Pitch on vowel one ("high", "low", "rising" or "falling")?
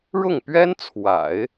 falling